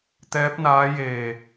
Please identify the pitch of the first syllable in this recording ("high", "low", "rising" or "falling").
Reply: rising